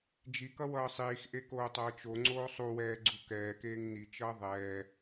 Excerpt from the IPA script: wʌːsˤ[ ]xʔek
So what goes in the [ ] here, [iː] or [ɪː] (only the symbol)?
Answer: iː